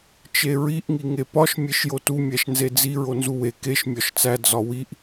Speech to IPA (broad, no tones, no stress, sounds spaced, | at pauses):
t͡ʃ e ɹ i ʔ ŋ i ŋ e p ɒ ʃ mʲ e ʃ j o t u mʲ æ ʃ n z e d͡z i ɹ o n z u w e k e ʃ mʲ ɒ ʃ t͡s æ d͡z ɒ w i ʔ